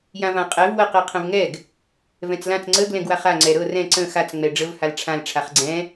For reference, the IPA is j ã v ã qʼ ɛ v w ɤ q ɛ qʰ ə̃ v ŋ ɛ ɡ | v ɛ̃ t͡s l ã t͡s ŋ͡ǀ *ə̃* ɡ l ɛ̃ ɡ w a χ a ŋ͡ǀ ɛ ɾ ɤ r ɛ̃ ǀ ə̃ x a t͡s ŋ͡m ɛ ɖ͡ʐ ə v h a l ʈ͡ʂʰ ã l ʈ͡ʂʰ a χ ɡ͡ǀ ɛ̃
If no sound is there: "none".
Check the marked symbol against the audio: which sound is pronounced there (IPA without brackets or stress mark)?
ə